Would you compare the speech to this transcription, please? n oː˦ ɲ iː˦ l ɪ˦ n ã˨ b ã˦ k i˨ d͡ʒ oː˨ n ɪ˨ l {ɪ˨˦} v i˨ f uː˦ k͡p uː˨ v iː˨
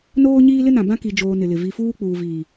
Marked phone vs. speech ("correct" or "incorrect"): incorrect